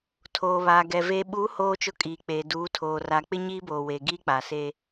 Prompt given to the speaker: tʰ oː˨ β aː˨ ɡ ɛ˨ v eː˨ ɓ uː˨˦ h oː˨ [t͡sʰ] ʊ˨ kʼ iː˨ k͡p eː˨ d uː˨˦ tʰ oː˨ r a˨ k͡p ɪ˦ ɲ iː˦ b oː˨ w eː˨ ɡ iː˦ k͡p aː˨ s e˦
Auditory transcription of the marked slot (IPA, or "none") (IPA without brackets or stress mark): t͡ʃ